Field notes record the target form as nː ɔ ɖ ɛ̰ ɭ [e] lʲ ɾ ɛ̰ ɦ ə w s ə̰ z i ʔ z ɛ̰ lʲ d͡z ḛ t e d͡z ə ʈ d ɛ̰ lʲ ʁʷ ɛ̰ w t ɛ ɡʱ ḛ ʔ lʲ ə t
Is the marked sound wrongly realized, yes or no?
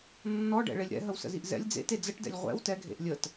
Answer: no